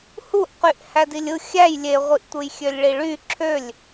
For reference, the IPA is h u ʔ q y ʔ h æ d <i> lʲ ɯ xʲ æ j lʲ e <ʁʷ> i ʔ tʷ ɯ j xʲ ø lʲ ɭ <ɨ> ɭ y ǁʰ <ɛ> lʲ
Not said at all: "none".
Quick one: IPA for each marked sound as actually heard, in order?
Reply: i, ʁʷ, i, ø

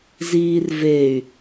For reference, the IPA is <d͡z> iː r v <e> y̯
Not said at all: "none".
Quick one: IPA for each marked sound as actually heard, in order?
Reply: z, e

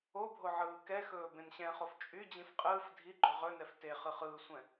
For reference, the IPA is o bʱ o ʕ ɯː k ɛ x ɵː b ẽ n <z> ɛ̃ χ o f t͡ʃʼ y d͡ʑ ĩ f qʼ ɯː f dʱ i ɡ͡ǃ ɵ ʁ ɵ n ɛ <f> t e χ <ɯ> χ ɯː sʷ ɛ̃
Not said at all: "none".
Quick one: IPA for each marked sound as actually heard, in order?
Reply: ɕ, f, ɯ

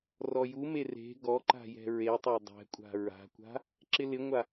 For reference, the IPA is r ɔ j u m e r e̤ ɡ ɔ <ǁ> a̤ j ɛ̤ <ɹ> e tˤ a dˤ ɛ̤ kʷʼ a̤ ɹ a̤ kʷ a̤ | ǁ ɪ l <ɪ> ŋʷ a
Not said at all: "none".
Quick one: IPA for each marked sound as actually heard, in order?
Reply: ǃ, ɹ, ɪ

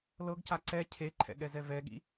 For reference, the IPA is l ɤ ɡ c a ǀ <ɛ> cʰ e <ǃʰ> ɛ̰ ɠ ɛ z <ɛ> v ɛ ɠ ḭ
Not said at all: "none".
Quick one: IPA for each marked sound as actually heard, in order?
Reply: ɛ, ǃʰ, ɛ

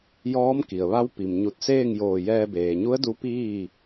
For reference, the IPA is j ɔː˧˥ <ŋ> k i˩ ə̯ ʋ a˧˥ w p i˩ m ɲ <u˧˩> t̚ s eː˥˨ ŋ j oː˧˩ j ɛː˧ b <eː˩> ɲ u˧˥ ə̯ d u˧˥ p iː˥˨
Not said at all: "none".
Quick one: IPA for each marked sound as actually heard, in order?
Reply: m, u˧˩, eː˩

